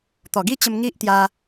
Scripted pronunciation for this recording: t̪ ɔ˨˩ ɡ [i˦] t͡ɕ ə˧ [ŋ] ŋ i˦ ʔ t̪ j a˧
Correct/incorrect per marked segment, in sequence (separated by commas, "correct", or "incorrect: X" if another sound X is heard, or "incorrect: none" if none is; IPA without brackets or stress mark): correct, incorrect: m